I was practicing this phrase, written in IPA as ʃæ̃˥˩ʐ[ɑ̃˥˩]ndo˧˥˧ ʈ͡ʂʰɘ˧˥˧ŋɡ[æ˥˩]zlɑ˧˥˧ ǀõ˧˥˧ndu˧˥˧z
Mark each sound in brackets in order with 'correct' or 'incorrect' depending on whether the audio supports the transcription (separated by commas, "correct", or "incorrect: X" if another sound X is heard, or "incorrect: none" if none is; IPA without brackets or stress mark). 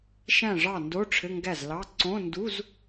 incorrect: ɑ˥˩, correct